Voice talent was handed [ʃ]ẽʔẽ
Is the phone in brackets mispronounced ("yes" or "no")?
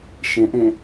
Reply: no